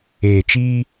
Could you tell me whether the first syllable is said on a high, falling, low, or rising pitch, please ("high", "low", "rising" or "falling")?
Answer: low